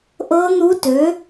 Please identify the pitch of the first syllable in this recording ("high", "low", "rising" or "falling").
rising